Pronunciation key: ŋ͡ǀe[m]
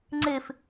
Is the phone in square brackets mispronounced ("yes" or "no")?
yes